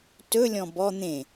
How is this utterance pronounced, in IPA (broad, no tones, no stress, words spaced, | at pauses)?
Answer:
tɵlʲɔ̃ bɔ n̪ẽ